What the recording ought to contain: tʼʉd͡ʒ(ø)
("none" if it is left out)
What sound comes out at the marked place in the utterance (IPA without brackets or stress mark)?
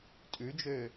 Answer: ø